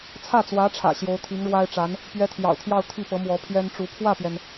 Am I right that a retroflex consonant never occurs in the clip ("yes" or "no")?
no